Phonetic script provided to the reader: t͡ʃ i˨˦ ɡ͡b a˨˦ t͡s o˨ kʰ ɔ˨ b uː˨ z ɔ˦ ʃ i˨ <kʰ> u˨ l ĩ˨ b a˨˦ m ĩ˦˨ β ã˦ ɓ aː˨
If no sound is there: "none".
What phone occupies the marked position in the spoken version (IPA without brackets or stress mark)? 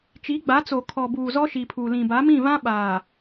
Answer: pʰ